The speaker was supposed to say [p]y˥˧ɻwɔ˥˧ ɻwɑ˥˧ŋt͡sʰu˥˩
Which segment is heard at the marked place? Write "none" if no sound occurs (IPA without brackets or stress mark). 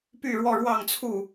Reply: p